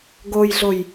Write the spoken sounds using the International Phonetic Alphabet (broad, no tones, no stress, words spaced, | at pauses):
ɡojɮoj